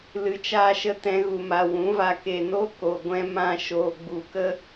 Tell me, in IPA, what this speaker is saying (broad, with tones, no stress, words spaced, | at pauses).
lɨ˧t͡ʃaː˦ʃə˦ tɛ̃˦ɣu˧ma˧ wũ˨˦va˧ ke˨no˦ko˨ɡʷɛ̃˧ mã˧ ʃoː˨ɡ͡bu˨kə˦